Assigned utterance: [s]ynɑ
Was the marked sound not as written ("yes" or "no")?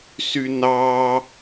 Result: no